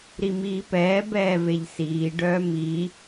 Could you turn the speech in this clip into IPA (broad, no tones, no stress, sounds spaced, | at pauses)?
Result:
ɾ i m iː p ɛː b ɛː v e ʎ s iː ɖ œː m i